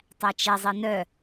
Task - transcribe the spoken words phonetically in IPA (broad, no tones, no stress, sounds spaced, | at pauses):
tˤ æ t͡ʃ ɛ zˤ i n œ